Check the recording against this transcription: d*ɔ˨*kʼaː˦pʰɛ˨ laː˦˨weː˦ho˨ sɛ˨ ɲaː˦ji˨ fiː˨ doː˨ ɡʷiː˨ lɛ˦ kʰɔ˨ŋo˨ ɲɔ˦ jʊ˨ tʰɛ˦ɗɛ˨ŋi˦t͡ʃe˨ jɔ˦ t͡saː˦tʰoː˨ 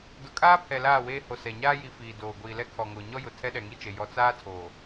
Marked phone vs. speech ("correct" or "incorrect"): incorrect